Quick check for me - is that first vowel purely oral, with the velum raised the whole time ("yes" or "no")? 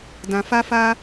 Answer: no